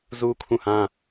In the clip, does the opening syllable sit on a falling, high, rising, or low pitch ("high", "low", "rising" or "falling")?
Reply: high